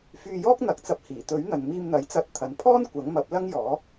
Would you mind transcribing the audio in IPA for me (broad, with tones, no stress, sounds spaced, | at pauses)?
f yː˧ j ɔː˥ k̚ n̪ ɐ˨˥ k̚ t͡s ɐ˧ p̚ h iː˨˩ t̪ ɵ˨˥ ɥ n̪ ɐ˨ n m iː˧ m n̪ ɐ˨˥ j t͡s ɐ˧ t̚ t̪ʰ ɐ˨ n pʰ ɔː˥ n kʷ ɐ˨˥ ŋ m ɐ˨˥ p̚ l ɐ˥ ŋ j ɔː˨˥